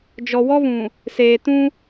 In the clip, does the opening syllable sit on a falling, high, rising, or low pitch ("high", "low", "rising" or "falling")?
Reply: low